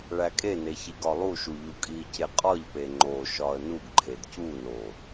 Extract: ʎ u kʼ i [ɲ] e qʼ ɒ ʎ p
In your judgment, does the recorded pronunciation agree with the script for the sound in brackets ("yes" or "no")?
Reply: no